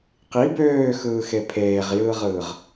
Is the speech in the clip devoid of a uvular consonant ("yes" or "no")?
no